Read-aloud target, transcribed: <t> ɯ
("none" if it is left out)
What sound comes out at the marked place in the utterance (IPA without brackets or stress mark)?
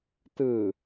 t